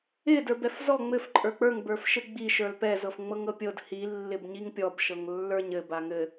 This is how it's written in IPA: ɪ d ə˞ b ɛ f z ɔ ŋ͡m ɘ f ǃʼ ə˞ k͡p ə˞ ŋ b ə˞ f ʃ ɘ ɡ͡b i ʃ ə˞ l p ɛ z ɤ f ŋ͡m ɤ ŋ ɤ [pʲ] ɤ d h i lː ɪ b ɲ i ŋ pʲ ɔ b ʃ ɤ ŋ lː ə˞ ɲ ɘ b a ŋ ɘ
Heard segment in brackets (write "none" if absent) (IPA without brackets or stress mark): pʲ